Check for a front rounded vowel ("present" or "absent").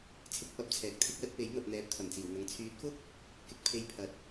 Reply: present